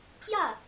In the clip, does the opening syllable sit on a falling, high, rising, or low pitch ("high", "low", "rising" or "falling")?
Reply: falling